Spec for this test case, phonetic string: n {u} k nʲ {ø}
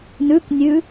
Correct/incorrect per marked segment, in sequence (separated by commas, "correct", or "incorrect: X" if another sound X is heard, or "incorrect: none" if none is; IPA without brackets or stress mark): incorrect: ʉ, incorrect: ʉ